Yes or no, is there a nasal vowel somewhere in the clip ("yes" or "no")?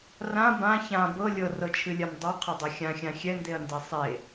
yes